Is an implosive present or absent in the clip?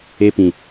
absent